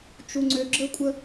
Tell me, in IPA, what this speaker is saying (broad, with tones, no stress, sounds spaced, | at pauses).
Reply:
t͡ʃ u˦ ŋ͡ǀ ø˦ ɡ͡ǁ ə˦ kʷʼ ə˦